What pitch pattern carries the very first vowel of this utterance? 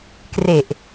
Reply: low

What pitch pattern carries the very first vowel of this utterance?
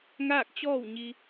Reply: falling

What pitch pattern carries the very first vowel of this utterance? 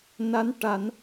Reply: rising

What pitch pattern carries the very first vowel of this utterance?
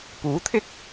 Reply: rising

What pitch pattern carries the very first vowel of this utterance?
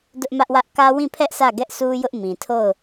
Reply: high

